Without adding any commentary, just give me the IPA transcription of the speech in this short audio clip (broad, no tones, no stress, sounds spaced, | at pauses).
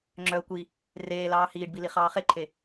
ŋ͡ǁ œ ə̯ kʷ i | r eː l ɑː h iː ɖ b i l i χ ɑː χ e ǃʰ e